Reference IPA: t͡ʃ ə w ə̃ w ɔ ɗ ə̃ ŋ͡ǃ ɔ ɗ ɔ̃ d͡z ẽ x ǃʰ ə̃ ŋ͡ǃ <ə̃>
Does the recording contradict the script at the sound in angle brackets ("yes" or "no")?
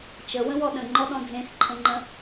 no